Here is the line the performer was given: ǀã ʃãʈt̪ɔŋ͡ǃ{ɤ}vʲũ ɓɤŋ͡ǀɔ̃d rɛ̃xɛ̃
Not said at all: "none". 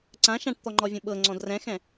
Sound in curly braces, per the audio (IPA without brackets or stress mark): ɔ